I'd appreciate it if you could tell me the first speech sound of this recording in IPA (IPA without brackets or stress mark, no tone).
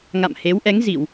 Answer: ŋ